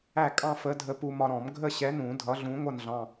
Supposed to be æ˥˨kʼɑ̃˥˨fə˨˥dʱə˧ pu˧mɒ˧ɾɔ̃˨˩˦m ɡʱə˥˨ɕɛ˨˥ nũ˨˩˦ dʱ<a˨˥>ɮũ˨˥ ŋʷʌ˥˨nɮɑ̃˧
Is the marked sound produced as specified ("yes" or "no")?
no